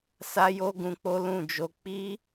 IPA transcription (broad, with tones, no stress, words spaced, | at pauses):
sa˦jo˦ɡũ˧ k͡po˦lũ˦˨d͡ʒo˧ k͡pi˦